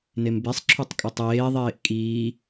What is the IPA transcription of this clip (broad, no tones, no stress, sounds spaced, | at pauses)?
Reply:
n e m b e sˤ ǁʰ u tˤ kʼ ʊ tˤ eː ðˤ eː ʔ kʼ iː